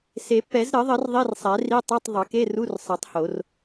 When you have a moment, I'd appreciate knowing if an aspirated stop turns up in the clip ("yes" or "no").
no